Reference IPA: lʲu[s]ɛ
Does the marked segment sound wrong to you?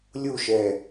yes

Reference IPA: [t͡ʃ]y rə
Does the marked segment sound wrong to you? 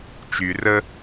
no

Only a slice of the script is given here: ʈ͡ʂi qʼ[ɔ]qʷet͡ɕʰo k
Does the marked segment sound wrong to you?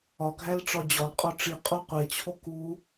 yes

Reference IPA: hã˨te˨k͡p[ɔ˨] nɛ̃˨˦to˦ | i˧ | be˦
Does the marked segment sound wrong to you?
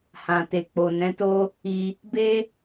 yes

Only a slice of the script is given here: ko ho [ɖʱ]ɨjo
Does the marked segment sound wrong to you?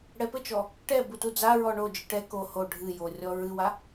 no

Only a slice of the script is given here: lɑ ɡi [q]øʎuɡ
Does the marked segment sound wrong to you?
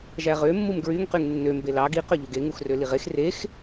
no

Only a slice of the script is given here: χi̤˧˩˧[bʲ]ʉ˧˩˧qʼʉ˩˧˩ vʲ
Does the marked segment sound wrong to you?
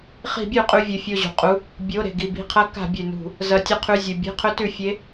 no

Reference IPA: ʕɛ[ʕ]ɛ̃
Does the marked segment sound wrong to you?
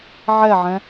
no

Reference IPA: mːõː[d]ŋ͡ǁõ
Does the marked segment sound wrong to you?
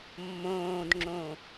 no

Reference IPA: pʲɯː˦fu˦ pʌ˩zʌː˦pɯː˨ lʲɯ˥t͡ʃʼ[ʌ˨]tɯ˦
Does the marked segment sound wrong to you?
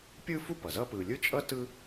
yes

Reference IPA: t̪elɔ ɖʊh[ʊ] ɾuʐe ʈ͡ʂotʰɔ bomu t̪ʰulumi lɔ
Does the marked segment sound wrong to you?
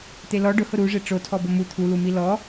no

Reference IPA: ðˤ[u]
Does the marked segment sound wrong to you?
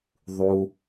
no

